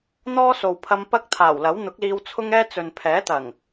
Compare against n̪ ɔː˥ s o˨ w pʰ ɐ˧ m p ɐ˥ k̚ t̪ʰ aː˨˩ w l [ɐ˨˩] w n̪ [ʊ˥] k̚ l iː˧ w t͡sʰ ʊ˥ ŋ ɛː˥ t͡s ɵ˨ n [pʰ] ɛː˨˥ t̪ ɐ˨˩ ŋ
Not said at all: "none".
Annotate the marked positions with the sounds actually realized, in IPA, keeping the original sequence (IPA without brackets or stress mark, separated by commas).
ɐ˨˥, ʊ˨˥, pʰ